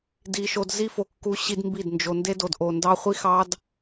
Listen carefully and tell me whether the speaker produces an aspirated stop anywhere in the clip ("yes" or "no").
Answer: no